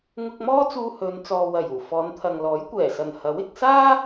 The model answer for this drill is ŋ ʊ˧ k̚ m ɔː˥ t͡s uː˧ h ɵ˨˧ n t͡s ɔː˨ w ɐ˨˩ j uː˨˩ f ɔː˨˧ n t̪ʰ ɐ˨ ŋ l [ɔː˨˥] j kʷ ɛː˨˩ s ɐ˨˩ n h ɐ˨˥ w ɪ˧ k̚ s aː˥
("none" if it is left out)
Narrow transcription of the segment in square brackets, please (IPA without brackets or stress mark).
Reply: ɔː˨˥